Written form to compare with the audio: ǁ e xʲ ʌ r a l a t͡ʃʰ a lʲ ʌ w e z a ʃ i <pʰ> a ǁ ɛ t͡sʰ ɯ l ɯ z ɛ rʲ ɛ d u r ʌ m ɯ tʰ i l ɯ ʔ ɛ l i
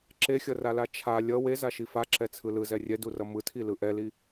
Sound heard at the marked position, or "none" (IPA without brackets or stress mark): f